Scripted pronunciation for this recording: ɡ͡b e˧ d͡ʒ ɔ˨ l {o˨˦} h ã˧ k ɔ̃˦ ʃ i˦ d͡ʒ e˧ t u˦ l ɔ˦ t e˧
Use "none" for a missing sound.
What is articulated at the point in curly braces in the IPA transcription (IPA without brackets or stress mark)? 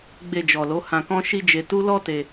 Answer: o˨˦